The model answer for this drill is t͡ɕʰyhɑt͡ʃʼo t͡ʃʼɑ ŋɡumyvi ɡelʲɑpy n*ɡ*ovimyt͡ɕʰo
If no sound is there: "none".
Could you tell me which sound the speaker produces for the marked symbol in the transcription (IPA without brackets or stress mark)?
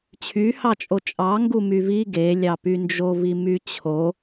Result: d͡ʒ